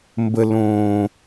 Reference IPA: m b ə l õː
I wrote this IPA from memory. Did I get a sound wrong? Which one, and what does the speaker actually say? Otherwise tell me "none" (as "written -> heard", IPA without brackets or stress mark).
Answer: none